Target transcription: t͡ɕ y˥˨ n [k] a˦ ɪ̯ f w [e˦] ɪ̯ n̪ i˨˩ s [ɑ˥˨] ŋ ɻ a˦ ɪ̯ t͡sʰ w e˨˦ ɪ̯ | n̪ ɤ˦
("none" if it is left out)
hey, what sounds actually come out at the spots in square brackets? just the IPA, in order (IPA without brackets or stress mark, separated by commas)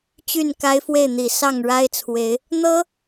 k, e˥˨, ɑ˥˨